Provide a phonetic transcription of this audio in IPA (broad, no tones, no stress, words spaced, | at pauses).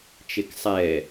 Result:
t͡ʃeksˤɛ